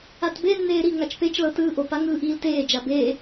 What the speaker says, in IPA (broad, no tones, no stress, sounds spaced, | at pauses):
a t b e nː eː ɾ i ŋ a t͡ʃ p e t͡ʃ l ɤ t ɯː ʔ o p a ŋ ɯː ʔ iː l t eː d͡ʒ a b eː